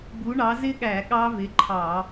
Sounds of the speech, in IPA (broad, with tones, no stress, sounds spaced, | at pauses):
b u˨˥ ɳ ɑ˨˥ z ɪ˦˥ ɠ æ˧˩˧ ɠ ɑ˦˥ v ɪ˨˥ ǃʰ ɑ˧˩˧